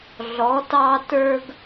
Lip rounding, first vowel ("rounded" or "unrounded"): rounded